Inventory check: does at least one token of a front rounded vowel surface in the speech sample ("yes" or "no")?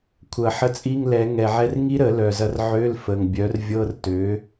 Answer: yes